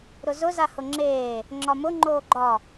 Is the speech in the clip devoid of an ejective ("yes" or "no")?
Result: yes